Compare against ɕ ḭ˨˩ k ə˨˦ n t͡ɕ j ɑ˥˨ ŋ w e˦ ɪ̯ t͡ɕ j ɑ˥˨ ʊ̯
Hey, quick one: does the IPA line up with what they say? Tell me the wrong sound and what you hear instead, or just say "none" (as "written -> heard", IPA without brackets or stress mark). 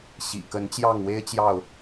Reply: none